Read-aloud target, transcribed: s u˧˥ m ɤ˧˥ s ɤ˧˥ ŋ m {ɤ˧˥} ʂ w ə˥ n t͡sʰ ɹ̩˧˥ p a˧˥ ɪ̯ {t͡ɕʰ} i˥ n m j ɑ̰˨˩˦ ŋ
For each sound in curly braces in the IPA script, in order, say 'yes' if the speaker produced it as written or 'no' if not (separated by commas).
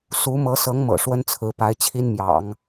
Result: no, yes